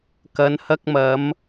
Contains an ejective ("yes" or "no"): no